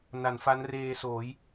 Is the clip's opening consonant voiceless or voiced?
voiced